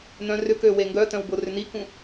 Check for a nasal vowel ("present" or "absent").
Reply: present